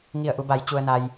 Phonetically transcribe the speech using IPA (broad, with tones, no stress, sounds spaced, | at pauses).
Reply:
ŋ i˧˩ ə̯ ʔ u˩˧ b a˩˧ j t͡ɕ u˩ ə̯ n a˩ j